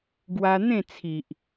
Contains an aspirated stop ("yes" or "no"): yes